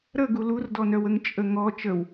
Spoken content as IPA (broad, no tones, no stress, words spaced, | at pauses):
ɾəɡu lurdɔnœwəŋ t͡ʃʼəŋɔ t͡ʃəw